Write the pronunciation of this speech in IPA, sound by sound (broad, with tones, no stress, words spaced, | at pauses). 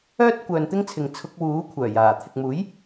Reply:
œː˥t̚kʷœː˨nt̪ɪ˥ŋt͡sʰɪ˨ŋ t͡sʰʊ˧k̚wuː˨˥ kʷʰœː˨˩jaː˨˩ t̪ʰɪ˨k̚muː˨˥j